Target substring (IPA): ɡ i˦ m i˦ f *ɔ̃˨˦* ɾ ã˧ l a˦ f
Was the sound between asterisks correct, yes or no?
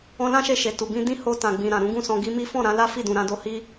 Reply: no